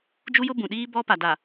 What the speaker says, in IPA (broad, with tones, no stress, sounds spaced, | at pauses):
d͡ʒ u˦ j ʊ˦ b ũ˨ ɗ iː˦ b ɔ˦ p a˨ d a˨